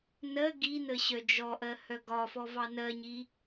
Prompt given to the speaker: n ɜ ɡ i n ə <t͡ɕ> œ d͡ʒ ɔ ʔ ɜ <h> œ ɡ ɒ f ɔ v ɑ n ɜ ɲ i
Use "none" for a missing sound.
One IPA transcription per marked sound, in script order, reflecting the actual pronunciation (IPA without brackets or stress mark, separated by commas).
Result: ɕ, h